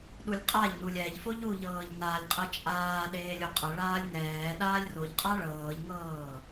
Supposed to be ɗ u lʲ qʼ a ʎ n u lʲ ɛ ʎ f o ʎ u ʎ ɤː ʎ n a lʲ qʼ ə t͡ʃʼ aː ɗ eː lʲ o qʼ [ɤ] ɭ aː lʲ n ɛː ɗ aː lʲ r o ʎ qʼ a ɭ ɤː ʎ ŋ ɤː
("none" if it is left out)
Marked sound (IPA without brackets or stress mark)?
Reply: ɤ